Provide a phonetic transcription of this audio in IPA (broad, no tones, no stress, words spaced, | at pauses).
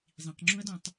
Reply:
zˤĩqŋ͡ǁũɐ̯dɔ̃tˤ